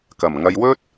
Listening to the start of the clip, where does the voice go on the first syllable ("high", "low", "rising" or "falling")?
low